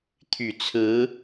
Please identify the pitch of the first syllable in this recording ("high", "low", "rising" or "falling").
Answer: low